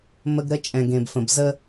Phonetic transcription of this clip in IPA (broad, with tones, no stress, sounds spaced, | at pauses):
m ə˦ ɡ ɾ ə˦ t͡ʃʼ ɛ̃˨ ɡ ẽ˨ b f ə̃˨ b z ə˦